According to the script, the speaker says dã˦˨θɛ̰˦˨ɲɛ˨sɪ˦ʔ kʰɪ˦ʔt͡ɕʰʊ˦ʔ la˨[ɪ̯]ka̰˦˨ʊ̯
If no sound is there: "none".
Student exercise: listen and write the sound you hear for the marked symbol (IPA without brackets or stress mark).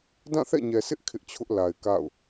ɪ̯